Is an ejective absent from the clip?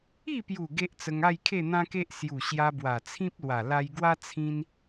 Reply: yes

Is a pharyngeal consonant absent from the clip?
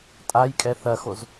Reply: yes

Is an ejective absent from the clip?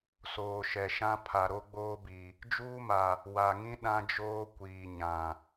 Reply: yes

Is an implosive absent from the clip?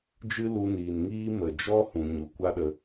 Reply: no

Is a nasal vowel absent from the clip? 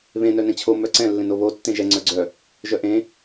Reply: no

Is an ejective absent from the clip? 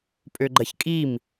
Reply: no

